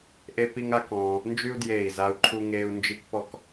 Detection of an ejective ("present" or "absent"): absent